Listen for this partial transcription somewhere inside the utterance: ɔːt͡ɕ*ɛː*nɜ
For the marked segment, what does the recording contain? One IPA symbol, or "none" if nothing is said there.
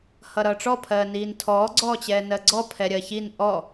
ɛː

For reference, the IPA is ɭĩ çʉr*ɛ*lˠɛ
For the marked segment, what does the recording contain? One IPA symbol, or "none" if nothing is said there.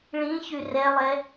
ɛ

